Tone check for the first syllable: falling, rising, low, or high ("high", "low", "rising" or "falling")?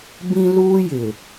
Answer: high